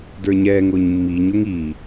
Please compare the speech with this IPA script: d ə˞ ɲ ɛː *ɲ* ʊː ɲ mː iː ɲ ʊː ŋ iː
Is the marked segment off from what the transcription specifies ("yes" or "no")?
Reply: yes